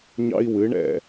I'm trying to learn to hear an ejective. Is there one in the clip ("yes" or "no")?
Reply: no